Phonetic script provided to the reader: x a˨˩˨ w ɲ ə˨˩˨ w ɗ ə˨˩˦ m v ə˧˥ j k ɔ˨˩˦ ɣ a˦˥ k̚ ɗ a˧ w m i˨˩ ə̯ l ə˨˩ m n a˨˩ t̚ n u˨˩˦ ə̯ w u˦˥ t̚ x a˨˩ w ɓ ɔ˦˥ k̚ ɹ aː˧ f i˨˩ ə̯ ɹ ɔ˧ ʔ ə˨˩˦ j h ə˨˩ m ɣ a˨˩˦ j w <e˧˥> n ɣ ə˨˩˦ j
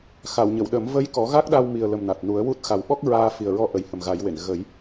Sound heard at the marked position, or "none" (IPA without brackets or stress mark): e˨˩˨